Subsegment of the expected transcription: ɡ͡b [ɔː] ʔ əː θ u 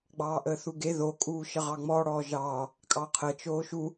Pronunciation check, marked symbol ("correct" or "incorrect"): incorrect